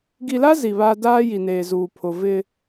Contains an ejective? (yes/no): no